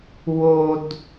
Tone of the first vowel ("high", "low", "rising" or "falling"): high